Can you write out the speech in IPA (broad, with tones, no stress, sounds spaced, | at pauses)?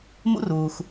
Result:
m ṵ˥ r uː˩ x